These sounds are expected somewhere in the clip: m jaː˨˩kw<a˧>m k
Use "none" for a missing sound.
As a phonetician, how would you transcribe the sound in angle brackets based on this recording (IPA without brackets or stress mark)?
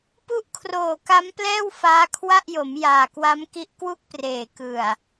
a˦˥